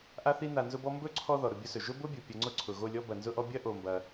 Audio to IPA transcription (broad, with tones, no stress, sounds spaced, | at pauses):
ʔ a˧ θ i˧ n a˧ n z ʊ˦ b ɔ˦ m b ɵ˦˨ ǀʰ ɔ˧ ð ɔ˨ ɾ ʊ˦˨ bʲ ʊ˦ s ɵ˨ ʒ ʊ˦ b ʊ˦ bʲ ʊ˨ pʲ ɐ˧ ŋ͡ǀ ʊ˦ ǀʰ ʊ˨ ɣ o˦˨ lʲ ɔ˦ b ɐ˨ n z ʊ˦ ʔ ɔ˦ bʲ ɐ˦ ʔ o˧ m b ɐ˧